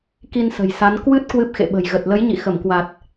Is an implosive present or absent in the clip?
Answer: present